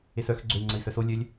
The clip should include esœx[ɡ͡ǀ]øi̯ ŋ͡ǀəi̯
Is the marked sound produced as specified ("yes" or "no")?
yes